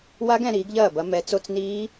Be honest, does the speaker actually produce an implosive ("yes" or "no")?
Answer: no